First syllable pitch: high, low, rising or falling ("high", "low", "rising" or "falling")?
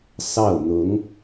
falling